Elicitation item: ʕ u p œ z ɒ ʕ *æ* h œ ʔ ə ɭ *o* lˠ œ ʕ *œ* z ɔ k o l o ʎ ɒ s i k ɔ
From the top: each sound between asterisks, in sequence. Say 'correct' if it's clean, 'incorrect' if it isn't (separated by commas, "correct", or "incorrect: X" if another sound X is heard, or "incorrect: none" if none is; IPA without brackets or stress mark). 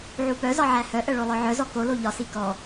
correct, correct, correct